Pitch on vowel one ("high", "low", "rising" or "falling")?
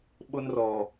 high